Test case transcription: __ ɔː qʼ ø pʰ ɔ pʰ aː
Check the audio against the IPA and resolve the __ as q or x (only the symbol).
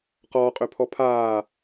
q